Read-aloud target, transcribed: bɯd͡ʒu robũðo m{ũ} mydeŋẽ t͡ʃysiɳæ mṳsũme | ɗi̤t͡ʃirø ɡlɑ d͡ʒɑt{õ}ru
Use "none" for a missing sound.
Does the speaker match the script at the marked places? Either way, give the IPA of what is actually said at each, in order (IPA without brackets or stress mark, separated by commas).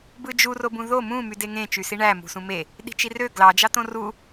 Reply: ũ, õ